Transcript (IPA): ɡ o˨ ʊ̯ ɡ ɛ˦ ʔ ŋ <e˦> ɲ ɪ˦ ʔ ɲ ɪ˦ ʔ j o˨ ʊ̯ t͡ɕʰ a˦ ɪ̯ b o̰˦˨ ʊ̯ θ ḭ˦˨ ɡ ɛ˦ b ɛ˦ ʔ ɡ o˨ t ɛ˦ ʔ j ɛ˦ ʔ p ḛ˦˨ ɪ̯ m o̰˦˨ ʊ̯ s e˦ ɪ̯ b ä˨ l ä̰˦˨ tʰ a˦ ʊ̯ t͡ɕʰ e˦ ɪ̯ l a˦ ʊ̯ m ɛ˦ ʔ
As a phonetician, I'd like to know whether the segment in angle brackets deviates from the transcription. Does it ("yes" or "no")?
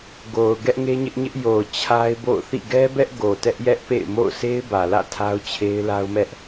no